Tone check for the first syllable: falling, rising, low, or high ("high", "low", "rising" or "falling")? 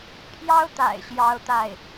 high